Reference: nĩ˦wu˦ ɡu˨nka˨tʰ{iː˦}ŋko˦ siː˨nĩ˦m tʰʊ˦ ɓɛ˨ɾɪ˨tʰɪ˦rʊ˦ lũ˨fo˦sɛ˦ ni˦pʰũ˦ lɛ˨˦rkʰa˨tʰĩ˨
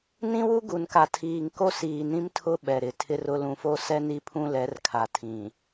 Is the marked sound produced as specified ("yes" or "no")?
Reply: no